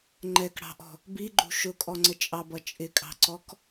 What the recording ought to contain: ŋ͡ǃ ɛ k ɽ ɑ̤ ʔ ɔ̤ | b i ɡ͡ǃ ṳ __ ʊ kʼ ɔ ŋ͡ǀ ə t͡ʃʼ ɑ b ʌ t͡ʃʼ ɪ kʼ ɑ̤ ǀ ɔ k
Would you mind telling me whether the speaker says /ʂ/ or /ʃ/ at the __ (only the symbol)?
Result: ʃ